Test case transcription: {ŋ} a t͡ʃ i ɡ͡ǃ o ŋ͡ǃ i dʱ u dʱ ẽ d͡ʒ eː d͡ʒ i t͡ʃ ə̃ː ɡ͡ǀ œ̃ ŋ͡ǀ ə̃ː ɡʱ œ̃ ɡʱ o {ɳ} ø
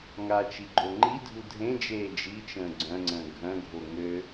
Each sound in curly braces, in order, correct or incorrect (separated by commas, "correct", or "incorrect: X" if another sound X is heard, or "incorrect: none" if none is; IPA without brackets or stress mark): correct, incorrect: ŋ